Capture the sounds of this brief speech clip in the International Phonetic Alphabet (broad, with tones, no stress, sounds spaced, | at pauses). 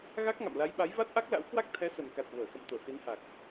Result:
ɣ a˦˥ k̚ ŋ a̰˧˨ m l a˨˦ j ɓ a˨˦ j v a˦˥ t̚ ʔ a˦˥ k̚ l a̰˧˥ w k w a˦˥ k̚ t̪ʰ ɛ˨˦ s ə˨˩ n k a˨˩ t̚ v əː˧˩ x ə̰˧˨ m t̪ o˧˩ s i˨˦ n h a˨˩ k̚